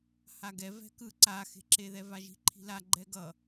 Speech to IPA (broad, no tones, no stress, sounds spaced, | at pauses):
h a ɡ ɛ v ɛ̤ k ɯ ǀ a x e̤ ǁ e ð ɛ v a ʒ i̤ ǃʰ i̤ l a ɡ͡ǃ ɛ ɡ ʌ